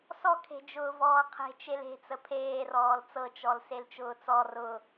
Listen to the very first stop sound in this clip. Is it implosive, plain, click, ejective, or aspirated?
aspirated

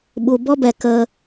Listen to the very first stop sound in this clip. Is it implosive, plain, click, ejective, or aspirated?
implosive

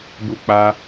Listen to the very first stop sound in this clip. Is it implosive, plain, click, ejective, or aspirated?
plain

